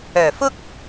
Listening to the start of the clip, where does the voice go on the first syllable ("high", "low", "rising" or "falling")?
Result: low